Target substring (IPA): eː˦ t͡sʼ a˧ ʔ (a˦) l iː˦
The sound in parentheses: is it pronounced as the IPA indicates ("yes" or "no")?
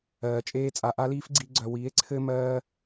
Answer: yes